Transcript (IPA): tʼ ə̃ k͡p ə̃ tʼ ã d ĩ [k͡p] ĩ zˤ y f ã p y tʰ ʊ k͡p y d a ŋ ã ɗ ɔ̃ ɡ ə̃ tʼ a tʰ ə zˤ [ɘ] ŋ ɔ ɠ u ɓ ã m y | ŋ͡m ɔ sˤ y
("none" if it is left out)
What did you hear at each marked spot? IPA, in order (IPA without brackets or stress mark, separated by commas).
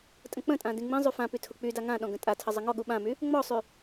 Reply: ŋ͡m, ɘ